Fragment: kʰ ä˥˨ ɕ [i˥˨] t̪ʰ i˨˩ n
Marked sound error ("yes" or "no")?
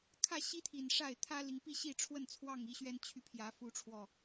yes